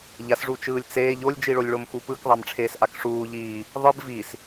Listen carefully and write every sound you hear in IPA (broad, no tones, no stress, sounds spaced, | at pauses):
ʎ a s ʐ u t͡ʃ ɯː lʲ t͡s eː ʎ o lʲ d͡ʒ i ɭ o lʲ ɭ o m x u p ɯ k ðˤ a m ʈ͡ʂʰ eː s ʔ a k ʂ uː ʎ iː | ðˤ ɯ b v i s